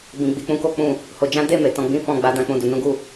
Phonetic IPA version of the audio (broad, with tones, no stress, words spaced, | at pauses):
bĩ˧ɡ͡bi˧ k͡pũ˦ko˦k͡pũ˦˨ | ho˧d͡ʒã˦ de˦˨ me˨tɔ̃˧ɡ͡bĩ˦fɔ̃˦˨ ɡ͡ba˨˦dã˧ k͡pũ˧du˧nũ˦ ɡu˦˨